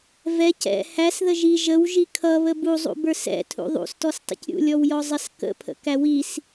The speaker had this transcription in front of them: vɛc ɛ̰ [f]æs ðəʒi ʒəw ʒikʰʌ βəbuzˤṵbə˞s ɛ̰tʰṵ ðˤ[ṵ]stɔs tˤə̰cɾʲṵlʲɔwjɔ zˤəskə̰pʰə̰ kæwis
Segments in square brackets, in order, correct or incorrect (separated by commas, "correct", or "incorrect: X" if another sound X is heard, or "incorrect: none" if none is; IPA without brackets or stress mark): incorrect: h, correct